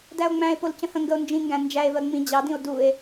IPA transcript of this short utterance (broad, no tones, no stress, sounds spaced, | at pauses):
d æ o̯ ŋ͡m æ̃ e̯ p o l c ə̃ h ə̃ ŋ ɡ ə o̯ n d͡ʒ ĩ ŋ ɡ æ̃ n d͡ʒ æ e̯ v ɜ ŋ͡m ĩ d͡ʑ ɑ d ĩ o̯ d u e̯